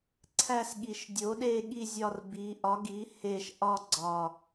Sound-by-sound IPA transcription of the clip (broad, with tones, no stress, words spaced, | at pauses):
ǀʰæ˦˨sɠi˨˩ʃ dʲo˩˥ɗe˦˨ɠi˦˨ zʲɒ˦˨rbi˩˥ ʔɒ˩˥ɡi˩˥ he˦˨ʃ ʔɒ˦˨ɡ͡ǀɒ˨˩